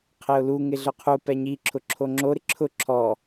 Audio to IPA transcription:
qʰ ɪ ʊ̯ l u ŋ ɪ ɮ ʊ qʰ u p ɛ ɲ i ǁʰ ʊ ǁʰ o ŋ͡ǁ o ɾ ɪ ǁʰ ʊ ǁʰ ɔ

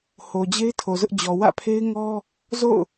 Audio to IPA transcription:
h o˨ d͡ʑ e˦ ɪ̯ tʰ o˨ z ʊ˦ ʔ d͡ʑ ɔ˨ w ä̰˦˨ pʰ e˦ ɪ̯ ŋ ɔ˦ | z o̰˦˨ ʊ̯

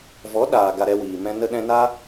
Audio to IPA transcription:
v ɔ˨˦ ɗ aː˨ ɡ a˧ ɾ ɛ˧ w iː˨ m ɛ̃˧ n ə˧ ɗ ɛ̃˧ n a˦

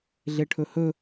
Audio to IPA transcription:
ɮ e ʈʰ ɵ h ɵ

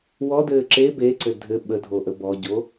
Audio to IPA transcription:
w ɔ d ɘː ǁ e b e ǀ ɘ dʱ ɘ ɓ ə dʱ o ʔ ə b ɔ ɟ o

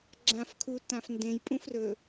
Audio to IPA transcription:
ɡ͡ǁ ã f kʰ u t ã f n d ẽ j pʼ ũ f r ɵ

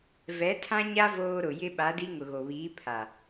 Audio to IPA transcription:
v ɛ˨˦ tʰ ã˦ ɲ a˦ v oː˦ ɾ ʊ˨ j ɪ˦ ɓ a˨˦ d i˦ ŋ ʊ˨ ɣ o˨ β iː˨˦ pʰ a˨

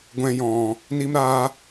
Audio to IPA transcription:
ɡʷ ɛ̃˨ j ɔ̃˨ | n i˧ m ɾ aː˧

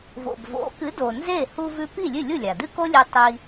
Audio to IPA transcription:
v o̰˩ b v o̰˩˥ k ɨ˩˥ d o˩ n z e˥˩ h u˧ v ʉ˧ p i˥˩ lʲ ɨ˥˩ lʲ u˥˩ lʲ a˩ d ɨ˥ k o˥ lʲ e˧ tˤ i˧

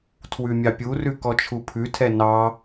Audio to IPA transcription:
tʰ w ʉ mʲ ɑ pʲ u r ʉ k ɔ t͡ʃʰ u pʰ ʉ tʰ ɛ n ɑ

